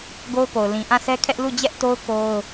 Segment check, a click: absent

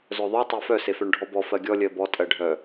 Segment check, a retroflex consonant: present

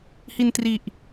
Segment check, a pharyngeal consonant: absent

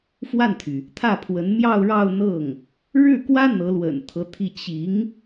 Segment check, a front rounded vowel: present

